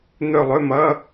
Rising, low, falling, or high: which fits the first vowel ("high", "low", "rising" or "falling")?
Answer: falling